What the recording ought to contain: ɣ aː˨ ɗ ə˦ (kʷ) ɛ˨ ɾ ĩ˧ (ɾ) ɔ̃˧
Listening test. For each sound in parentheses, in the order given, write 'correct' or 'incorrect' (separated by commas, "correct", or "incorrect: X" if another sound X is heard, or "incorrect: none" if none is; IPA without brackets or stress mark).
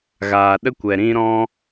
correct, correct